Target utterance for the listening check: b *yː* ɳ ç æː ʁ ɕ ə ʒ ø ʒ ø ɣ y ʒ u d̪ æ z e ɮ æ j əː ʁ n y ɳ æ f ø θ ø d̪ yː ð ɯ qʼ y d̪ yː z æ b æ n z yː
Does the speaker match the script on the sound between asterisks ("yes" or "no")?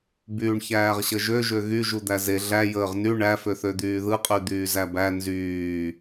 yes